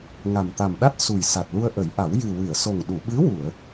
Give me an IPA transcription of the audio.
ŋ a˨˩ m t̪ a˨˩ m ɗ a˦˥ t̚ s u˨˩ j s a˨˩ t̚ l u˧ ə̯ ʔ ə˨˩˦ j ʔ a˨˩˦ w j ɨ˨˩ w ɨ˨˩˨ ə̯ s o˨˩ ŋ ɗ u˨˩˨ ɓ ɨ˧˥ w u˨˩˨ ə̯

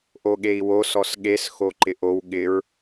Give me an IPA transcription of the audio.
ʔ o ɠ e i̯ w o s ɔ s ɠ e s x o ǃ ɪ ʔ o w ɠ ɪ ɹ

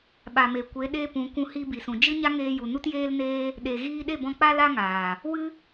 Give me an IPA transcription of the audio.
ɓ a˨ m e˨ kʷ e˨˦ ɗ e˦ p ũ˨˦ kʷ ũ˧ h i˧ b i˨ s ũ˨ d͡ʒ ɨ˦ ɲ a˦ ŋ eː˧ j u˨ n u˦ t j eː˦ l n eː˦ | ɗ e˨ ɣ iː˧ ɗ e˦˨ b ɔ̃˧ k͡p a˦ l a˦ ŋ aː˨ | w ɨ˦

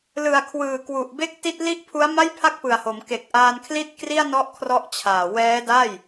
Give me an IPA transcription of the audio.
l ɯ˨˩ a̯ kʰ w ɯː˨˩ k w u˨˩ ʔ b e˦˥ k̚ t i˥˩ t̚ l i˥˩ ʔ pʰ u˦˥ a̯ m a˥˩ j pʰ a˥˩ k̚ p ɯ˨˩ a̯ h o˩˦ m k e˨˩ k̚ ʔ aː˧ n kʰ l i˥˩ t̚ k r i˥˩ a̯ n ɔ˥˩ ʔ kʰ r ɔ˦˥ ʔ t͡ɕʰ aː˨˩ w ɛː˦˥ d a˥˩ j

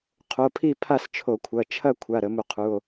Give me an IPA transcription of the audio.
qʰ o˩˧˩ pʰ i˥˨ pʰ a˥˨ s t͡ʃʰ o˧˩˧ kʷʰ ɐ˩˧˩ t͡ʃʰ ɐ˥˨ kʷʰ a˩˧˩ ɾ ə˧˩˧ m u˧˩˧ qʰ u˩˧˩ o̯

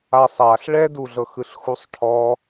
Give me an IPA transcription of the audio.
a sˤ a ɬ ɭ ɛ d u ɮ ɤ x ɯ ɬ x u sˤ ʈʰ ɔ

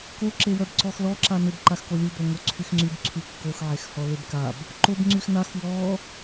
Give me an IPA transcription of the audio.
k o ǁ e w œ b ǀ ɔ x l ɔ ǁ a n ʏ b ǃ a x k o lʲ u b œ ŋ o ǀʰ y x ŋ͡ǀ y b ǀʰ y kː o x ʕ e x h ɔ l e b k a b | ǃ o b ŋ͡ǀ y x n a x w ɔ

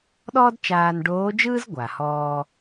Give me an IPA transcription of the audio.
ɗ ɔː˥ d t͡ʃ aː˧ n ɖ oː˧˥ d͡ʒ ɯː˥ z ɡʷ a˩ h ɔː˧

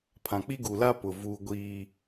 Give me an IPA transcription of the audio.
pʰ ã˨ k͡p i˦ ɡ u˨ l a˦ p ʊ˨ v u˦ ɡʷ iː˦

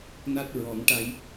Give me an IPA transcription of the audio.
n a˦˥ t̚ ɹ ɔ˨˩˦ ŋ ʈ a˧ j

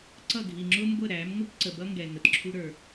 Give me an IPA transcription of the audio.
ǀ ʌ˦˨ ɡʱ i˨ ŋ͡ǁ ʊ˦ m ɡʷ ə˦˨ ɾ æ˨˦ m ŋʷ ə˦ k ǀ ə˨ b ʌ˦ ŋ ɡ ɛ˨ ŋ ə˨ t ǁʰ u˦ ɾ ə˞˦

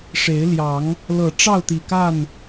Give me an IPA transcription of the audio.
ʂ e˨˦ ɪ̯ l j ɑ˨˦ ŋ | l ɤ˨˩ ʈ͡ʂ ɑ˥˨ ʊ̯ t̪ i˨˩ k a˥˨ n

